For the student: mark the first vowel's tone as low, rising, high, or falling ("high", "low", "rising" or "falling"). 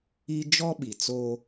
high